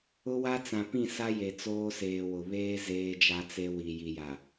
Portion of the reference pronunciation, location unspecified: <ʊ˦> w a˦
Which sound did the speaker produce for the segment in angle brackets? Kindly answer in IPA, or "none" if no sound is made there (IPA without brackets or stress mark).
ʊ˦